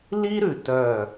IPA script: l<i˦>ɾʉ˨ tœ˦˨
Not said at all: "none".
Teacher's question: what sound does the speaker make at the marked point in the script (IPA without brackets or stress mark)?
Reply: i˦